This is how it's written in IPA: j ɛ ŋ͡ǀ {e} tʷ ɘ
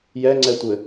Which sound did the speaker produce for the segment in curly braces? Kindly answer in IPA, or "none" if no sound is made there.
ɛ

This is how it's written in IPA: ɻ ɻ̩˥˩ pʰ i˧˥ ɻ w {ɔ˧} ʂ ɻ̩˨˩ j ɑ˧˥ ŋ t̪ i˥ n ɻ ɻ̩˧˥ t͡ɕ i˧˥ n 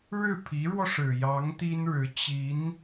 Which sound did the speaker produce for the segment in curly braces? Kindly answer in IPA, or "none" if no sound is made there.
ɔ˧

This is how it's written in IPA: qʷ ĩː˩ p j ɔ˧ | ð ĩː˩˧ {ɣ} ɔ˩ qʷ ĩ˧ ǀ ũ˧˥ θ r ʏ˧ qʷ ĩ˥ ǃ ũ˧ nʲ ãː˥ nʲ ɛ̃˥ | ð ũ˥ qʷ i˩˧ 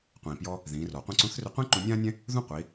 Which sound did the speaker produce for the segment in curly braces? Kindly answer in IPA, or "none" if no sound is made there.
r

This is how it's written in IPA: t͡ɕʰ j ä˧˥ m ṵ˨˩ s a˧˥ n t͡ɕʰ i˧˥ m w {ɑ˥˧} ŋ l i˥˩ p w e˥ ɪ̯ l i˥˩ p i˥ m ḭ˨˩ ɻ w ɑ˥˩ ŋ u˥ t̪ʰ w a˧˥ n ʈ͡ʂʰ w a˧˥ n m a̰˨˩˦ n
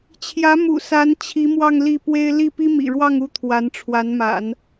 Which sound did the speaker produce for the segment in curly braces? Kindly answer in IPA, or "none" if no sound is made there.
ɑ˥˧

